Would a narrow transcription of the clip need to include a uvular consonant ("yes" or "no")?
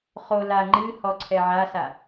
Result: yes